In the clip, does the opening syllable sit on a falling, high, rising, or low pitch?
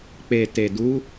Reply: low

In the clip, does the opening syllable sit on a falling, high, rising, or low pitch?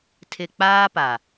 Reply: low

